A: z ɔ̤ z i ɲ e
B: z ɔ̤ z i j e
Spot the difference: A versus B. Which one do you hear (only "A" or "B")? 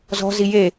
B